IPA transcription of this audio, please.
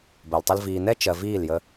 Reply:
b ɜ˨ l tˤ ə˧ l v iː˨ n ɛ˦ t͡ʃ ɜ˨ v iː˦˨ l j ə˧

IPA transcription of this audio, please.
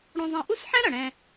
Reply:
ɽ õ˧ zˤ ɛ̃˧ ʔ u˥ s ħ ɛ̃˥ ɾ ʌ˩ ɽ ɛ̃˧

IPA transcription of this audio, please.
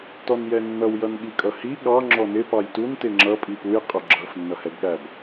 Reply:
t ɔ n j ɛ nː ʌ w j ʌ n ɠ i kʼ ʌ h i ɠ ɑ ŋ͡ǁ ɔ n ɪ p ɑ j t u n t ɪ ŋ͡ǁ ʌ pʼ i p u j qʼ ʊ ɡ͡ǁ ʌ f nː ʌ h ɛ ɡ ɠ æ b

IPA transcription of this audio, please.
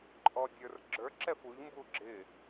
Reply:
ǃʼ ɔ dʲ ə˞ r ɡ͡ǁ ə˞ ǁ ɛ f u ʎ m b u ɡ͡ǁ ɪ

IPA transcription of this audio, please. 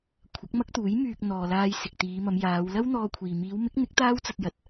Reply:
kʷʰ ɐ˨˥ k̚ m ɐ˥ k̚ t̪ uː˨˥ j m yː˧ k̚ n̪ ɔː˨ l aː˧ j s ɪ˨ k̚ t̪ iː˨˧ m ɐ˨˧ m j aː˨˧ w l ɐ˥ w n̪ ɔː˧ kʷʰ iː˨ m iː˨˧ w m ɪ˨˥ k̚ n̪ ɪ˨˥ k̚ t̪ aː˥ w t͡s ɐ˧ t̚ j ɐ˨ t̚

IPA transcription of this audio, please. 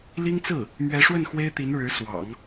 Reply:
l i˥ ŋ t͡s ɹ̩˥˩ | m ɥ ɛ˧˥ ʂ w ə˥˩ n x w e˥ ɪ̯ t̪ i˧˥ n ɻ ɻ̩˧˥ s w ɑ̰˨˩˦ ŋ

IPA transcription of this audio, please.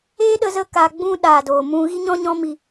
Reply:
eː˦ ɗ ə˦ z ə˦ k aː˧ ɡ͡b ũ˦ ɗ aː˨ d oː˨ m ũ˧ ɣ i˦ ɲ ɔ̃˦ ɲ ɔ̃˦ m i˧

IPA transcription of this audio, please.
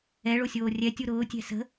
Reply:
ɛ ɭ o sʲ oː rʲ ɛ tʲ u ɾ ʊː tʲ ɛ̤ s ə̤

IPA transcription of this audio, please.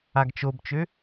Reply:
a ɡ t͡ʃ o b t͡ʃ ø

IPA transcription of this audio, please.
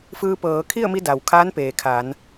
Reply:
f ɯː˧ p ɤː˩˧ kʰ i˥˨ ə̯ m i˧ d a˩ w kʰ aː˧˥ n p eː˩ kʰ a˩˧ n

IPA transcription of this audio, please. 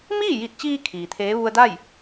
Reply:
m iː˥˨ j i˧˩ t̚ t͡ɕ iː˧ kʰ iː˩ t̪ʰ eː˧˥ ʋ u˧ ə̯ d a˥˨ j

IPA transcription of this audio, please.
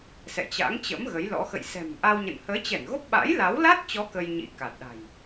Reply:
s ɛ̰˧˨ t͡ɕ a̰˧˥ ŋ t͡ɕ ə̰˧˥ m ɣ ə˨˦ j l ɔ̰˧˥ x ə̰˧˨ j s ɛ̤˨˩ m ʔ a˧ w ɲ ə̰˧˨ n h əː˨˦ t͡ɕ ɛ˧˩ n ɣ o˦˥ p̚ ɓ a̰˧˥ j l a˨˦ w l a˦˥ t̚ t͡ɕ ɔ˨˦ k ə˧ j ɲ ḭ˧˥ k a˨˩ t̚ ɗ a̤˨˩ j

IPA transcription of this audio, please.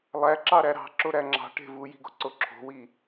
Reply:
lˠ æ ǁ ɑ ɾ æ ɾ ɑ̤ ǁ o ɾ æ ŋ͡ǁ ɑ̤ ʈ e̤ v u j i̤ ɡ o̤ ǀ o ǁʰ o̤ w i

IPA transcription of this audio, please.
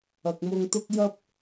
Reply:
ɐ˨ k̚ m ʊ˧ ŋ t̪ ʊ˥ k̚ j ɐ˥ p̚

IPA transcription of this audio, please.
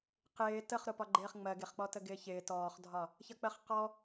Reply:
q ɪː t ə χ ɾ ʊ p ɒ ɡ͡ǃ ɪː χ ŋ͡m ɜ ɡ ɪ χ k͡p ɔ t ə ɡ ɪː ç ɪː t ɔː χ dʱ ɒ | ç ʌ k͡p ɜ χ q ɔ

